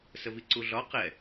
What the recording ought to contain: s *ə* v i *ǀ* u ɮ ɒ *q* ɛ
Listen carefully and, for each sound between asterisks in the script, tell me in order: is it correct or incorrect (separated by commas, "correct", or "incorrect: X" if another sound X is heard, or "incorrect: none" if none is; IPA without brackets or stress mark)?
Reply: correct, correct, correct